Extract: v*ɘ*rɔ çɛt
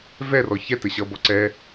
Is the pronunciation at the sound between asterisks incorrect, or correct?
incorrect: ɛ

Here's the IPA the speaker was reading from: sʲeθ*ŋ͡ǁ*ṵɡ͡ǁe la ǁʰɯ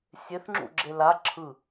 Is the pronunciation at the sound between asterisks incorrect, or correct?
correct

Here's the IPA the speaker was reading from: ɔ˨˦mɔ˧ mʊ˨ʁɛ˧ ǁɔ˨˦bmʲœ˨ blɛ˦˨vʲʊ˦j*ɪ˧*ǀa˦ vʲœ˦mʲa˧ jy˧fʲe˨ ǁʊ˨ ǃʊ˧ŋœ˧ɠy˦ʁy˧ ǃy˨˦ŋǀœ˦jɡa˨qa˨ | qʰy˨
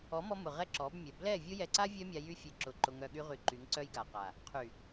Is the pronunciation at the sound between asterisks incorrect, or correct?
incorrect: ɛ˧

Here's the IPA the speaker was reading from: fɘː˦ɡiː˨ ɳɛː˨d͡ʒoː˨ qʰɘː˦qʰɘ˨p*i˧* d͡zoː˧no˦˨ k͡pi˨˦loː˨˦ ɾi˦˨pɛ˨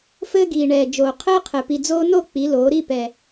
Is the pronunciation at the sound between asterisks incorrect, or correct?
incorrect: i˨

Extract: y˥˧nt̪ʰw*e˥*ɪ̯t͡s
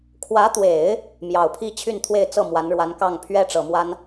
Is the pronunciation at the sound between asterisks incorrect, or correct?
incorrect: e˥˧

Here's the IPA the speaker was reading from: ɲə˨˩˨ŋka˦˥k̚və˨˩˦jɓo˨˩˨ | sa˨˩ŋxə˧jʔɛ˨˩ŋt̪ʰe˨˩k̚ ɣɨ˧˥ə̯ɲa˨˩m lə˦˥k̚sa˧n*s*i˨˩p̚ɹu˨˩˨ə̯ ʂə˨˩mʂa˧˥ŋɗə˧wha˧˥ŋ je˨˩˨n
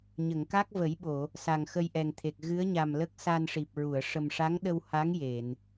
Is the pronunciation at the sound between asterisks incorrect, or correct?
incorrect: ʂ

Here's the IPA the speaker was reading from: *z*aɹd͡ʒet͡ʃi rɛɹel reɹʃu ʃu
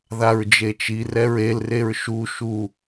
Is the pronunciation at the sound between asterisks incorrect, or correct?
incorrect: ð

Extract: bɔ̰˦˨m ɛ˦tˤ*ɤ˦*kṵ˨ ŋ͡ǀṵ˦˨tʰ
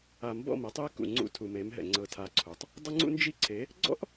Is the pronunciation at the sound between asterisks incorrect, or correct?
incorrect: ɯ˦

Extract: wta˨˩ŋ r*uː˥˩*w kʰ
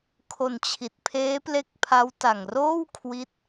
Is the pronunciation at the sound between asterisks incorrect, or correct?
incorrect: oː˥˩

